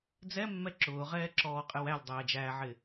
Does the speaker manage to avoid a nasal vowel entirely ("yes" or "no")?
yes